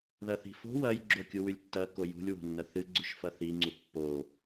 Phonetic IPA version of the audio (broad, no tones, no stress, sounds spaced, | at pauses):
ð ɐ θ i̤ f o̤ w ɐ j ɡ͡ǁ o kʲ u w ʉ lʲ tː ɐ k o j ṳ lʲ w o̤ nː ɐ θ ɨ ɡ͡ǀ ʉ ʃ f ɐ θ i ŋ͡ǀ u pː o